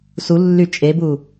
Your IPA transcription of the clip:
s u lː y t͡ʃʼ e b u

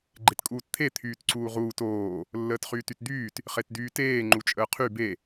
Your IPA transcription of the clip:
ɡ͡ǃ e t kʼ uː t t̪ʰ e t̪ʰ yː t ǀ uː ʁ uː t oː | lː əː t χ yː t y t d̪ yː t | χ e t d yː t eː ŋ͡ǃ u t͡ʃʼ əː qʰ y b e

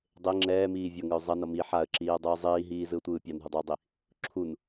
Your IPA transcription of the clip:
dˤ e ŋ͡ǁ ɛː m iː vʲ ʌ ŋ ɯ ʊ̯ zˤ ʌ n ʌ m i ħ a ə̯ ǁ iː ə̯ dˤ ɯː zˤ iː ɦ iː z ɯ ʊ̯ tʷ ɯː pʲ a n ɦ ɯ dˤ ʌ ʊ̯ dˤ i | ǁʰ u n

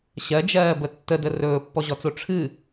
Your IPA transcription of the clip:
ɕ ɜ d͡ʒ ɜː b ə tː ə d ə r ɵː pː ɔ ʑ ɔ t͡s o ʈ͡ʂʰ ɨ

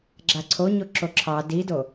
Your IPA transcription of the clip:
ɡ͡ǁ a ǀʰ o ɲ o ǁ o ǁʰ ɑ d i d o

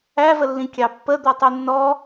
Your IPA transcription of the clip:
æ v ə lː ĩ kʲ ɑ pː ə d̪ ɔ tˤ u nː ɔ

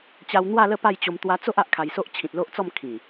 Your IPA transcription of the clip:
t͡ɕ a˧ w n̪ w a˥˧ l ə˥˧ p a˥˧ j t͡ɕ o˧ m t̪ w a˧ t͡s o˦ ʔ a˦ ʔ kʰ a˧ j s o˦ ʔ t͡ɕʰ ĩ˨ t̚ l o˦ ʔ t͡s ɔ˥˧ m kʰ ĩ˨˩

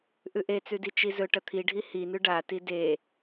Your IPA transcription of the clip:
ʔ ʉ ʔ e t͡s ʉ d i t͡ʃ i z ɵ ʈ ɐ t̪ʰ i ɖʱ i h i n ʉ ɖ a t i d e

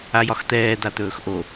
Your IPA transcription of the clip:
a j ɒ x t̪ ɛː d̪ a t̪ ɵː x ʔ o

